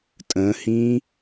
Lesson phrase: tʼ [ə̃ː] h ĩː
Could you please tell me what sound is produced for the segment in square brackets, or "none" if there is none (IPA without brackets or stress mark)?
ə̃ː